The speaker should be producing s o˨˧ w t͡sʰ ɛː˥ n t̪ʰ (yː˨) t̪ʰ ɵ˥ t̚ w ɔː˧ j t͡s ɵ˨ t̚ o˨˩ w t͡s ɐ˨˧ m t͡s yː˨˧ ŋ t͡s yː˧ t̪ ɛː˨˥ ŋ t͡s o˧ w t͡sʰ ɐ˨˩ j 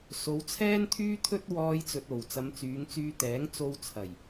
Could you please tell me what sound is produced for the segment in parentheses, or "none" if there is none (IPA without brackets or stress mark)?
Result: yː˥